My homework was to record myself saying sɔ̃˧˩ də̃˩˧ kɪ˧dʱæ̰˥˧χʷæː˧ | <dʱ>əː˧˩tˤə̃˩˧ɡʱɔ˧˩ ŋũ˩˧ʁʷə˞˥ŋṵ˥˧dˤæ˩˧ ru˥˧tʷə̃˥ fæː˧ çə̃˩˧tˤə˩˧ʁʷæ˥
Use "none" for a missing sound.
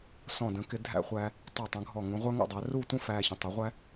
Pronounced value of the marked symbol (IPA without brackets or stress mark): tˤ